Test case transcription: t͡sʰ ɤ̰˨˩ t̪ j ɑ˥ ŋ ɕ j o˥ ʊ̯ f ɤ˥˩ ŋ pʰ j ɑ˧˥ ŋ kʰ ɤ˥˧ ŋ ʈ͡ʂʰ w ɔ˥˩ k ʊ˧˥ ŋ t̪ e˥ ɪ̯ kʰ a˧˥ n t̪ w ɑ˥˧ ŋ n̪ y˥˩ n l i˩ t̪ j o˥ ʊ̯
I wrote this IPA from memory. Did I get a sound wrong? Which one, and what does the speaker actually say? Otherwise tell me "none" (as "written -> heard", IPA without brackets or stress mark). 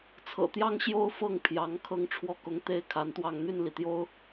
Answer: none